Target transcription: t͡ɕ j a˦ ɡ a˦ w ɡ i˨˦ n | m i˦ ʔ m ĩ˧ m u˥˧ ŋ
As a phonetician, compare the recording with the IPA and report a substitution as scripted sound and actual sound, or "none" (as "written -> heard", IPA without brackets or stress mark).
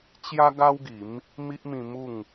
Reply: n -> m